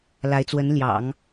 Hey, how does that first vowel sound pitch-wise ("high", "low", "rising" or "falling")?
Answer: rising